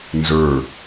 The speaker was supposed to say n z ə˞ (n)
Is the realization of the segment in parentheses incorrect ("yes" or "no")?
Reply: yes